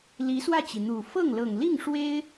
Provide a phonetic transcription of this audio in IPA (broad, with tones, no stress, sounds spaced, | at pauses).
l i˧˥ s w ä˥˩ t͡ɕ i˩ n̪ u˨˩ f ɤ˥˩ ŋ l ɤ˨˩ ŋ l i˥˩ ŋ ʂ w e˥ ɪ̯